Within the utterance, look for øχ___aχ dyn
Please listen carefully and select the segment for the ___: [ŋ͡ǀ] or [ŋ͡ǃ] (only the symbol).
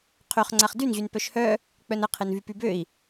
ŋ͡ǀ